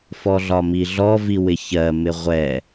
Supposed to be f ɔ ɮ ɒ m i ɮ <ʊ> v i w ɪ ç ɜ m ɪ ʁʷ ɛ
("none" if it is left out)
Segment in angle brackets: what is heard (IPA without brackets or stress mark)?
ɔ